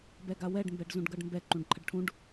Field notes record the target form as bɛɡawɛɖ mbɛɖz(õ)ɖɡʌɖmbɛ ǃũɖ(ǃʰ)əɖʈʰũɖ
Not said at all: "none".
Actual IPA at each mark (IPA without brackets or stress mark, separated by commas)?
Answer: ũ, ǃʰ